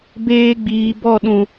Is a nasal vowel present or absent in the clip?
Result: present